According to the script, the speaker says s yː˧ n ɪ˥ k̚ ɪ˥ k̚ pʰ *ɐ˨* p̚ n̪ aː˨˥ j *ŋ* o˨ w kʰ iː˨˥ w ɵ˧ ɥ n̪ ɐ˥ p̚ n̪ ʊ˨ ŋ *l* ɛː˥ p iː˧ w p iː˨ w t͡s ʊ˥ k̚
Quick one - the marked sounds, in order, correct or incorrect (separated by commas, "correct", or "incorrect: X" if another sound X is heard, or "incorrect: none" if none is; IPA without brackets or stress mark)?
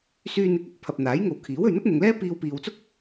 correct, correct, correct